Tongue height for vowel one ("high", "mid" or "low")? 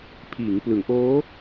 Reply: high